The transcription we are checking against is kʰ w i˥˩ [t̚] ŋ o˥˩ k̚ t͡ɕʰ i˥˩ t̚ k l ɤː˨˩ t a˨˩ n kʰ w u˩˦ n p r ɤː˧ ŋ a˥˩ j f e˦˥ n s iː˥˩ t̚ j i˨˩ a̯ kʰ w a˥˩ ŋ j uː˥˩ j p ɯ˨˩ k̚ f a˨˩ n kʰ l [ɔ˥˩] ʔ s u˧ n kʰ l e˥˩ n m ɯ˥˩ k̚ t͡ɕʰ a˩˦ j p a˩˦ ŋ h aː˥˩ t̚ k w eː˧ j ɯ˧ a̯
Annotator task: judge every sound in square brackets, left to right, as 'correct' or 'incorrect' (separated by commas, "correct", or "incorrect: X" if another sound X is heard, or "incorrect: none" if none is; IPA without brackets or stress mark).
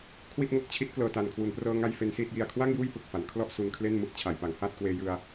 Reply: correct, correct